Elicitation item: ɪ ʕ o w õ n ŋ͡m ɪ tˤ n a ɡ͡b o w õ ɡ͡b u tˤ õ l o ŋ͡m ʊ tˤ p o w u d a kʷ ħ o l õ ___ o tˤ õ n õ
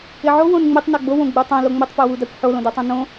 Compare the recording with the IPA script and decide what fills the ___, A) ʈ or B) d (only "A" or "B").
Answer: B